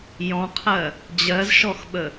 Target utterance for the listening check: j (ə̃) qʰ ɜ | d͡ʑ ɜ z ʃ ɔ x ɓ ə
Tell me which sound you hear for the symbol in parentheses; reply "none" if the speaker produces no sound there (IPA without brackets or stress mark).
ɔ̃